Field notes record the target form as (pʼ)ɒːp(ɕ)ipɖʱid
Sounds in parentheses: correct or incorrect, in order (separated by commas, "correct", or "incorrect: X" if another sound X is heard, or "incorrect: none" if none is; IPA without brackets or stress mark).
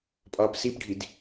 correct, incorrect: s